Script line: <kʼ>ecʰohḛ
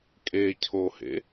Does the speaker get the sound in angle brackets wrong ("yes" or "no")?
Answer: no